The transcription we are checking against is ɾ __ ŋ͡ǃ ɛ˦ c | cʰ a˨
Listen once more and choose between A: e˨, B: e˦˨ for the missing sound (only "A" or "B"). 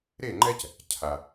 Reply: B